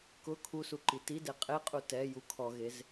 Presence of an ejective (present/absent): present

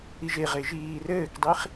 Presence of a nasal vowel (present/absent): absent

